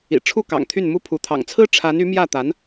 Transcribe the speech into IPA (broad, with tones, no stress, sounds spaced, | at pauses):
ḭ˨˩ ʈ͡ʂʰ u˥˩ k ɑ̰˨˩ ŋ t̪ʰ y˥˩ n m u˥ pʰ u˧˥ t̪ʰ ɑ̰˨˩ ŋ t͡sʰ ɹ̩˥ ʈ͡ʂʰ a˧˥ n y˧˥ m j ä˥˩ t̪ a˧˥ n